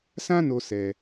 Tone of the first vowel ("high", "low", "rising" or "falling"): high